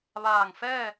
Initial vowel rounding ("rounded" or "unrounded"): unrounded